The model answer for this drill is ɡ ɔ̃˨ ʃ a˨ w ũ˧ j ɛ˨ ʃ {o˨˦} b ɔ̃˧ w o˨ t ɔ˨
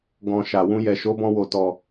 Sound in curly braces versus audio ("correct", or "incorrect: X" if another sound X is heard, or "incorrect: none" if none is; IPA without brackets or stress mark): correct